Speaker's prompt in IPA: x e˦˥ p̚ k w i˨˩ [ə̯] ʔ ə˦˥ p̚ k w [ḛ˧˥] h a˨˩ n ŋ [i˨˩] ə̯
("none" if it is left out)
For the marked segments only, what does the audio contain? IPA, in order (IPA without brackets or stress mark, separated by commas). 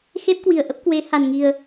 ə̯, e˨˦, i˨˩